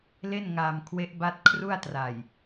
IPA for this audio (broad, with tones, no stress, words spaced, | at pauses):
le˥˩nŋaː˧m kʰwe˦˥ʔba˦˥t̚ kʰru˥˩a̯tra˨˩j